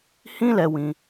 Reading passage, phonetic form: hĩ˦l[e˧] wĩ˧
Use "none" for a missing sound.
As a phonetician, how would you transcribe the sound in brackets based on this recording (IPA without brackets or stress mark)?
ɛ˧